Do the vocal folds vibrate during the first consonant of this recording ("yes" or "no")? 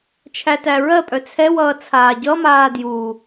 no